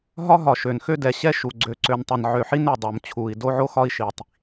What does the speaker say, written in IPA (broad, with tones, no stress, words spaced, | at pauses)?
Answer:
ɦɒ˦ɦɒ˨ʃø˨nxø˦ dɛ˨ɕɛ˦ʃu˨ ɡ͡ǀø˨ǀø˨ntˤɛ˨n ʕø˨ħi˦nø˨dˤo˨m t͡ɕʰu˨i̯ do˦ʕo˦xɒ˦i̯ ʃi˨tˤ